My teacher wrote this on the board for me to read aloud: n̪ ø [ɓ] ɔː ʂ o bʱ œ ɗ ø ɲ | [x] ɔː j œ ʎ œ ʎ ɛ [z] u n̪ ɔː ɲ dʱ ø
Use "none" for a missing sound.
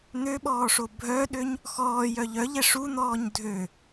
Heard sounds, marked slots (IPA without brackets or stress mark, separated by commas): ɓ, x, ʂ